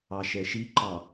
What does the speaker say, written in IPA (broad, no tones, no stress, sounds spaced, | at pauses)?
ɑ ʃ ɛ ʃ i ǃ ɑ